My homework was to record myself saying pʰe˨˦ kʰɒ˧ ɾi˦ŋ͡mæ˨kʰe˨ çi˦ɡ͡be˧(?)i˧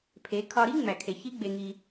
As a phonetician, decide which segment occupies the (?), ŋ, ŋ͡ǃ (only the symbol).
ŋ